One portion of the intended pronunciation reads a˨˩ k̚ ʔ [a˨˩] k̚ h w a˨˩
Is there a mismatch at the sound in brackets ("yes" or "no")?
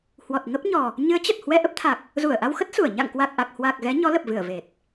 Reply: no